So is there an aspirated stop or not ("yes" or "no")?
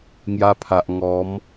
yes